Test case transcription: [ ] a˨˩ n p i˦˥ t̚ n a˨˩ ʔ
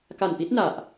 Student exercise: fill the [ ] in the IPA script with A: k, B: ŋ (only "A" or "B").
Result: A